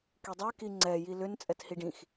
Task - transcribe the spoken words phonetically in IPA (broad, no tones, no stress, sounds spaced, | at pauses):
k i dˤ ɛ k i ŋ͡ǀ ɛ j i l ʏ n t͡sʼ ɛ t h i ɖ ĩ x